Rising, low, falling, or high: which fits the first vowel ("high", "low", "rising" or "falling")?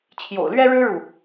low